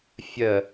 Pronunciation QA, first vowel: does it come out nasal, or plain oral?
oral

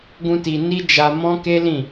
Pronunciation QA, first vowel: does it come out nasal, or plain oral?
nasal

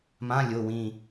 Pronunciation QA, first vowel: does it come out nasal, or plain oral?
nasal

